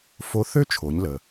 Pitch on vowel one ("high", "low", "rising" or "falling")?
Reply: rising